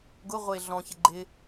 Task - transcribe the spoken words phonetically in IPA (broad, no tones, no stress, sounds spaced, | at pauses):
ɡ ʊ ʁʷ e ɮ ɔ̃ ç ɪ ɡ͡ǃ ɪ